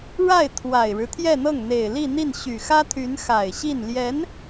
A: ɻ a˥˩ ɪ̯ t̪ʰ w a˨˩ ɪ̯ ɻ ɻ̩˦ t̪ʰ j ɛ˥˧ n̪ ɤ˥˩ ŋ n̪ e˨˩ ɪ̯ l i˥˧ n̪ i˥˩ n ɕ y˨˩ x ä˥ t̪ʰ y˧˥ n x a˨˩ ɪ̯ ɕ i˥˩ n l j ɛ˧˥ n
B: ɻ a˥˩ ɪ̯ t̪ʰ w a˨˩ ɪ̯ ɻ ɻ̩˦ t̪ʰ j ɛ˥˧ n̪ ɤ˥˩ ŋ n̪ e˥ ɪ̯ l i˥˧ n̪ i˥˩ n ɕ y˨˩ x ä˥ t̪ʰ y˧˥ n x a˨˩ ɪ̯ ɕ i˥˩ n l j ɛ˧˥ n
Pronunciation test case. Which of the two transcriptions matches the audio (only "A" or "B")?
A